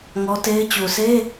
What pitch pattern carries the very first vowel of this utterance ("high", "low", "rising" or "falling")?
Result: high